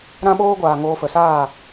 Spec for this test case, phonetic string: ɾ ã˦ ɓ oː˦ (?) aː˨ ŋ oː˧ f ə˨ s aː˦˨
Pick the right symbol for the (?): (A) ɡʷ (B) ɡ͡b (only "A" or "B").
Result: A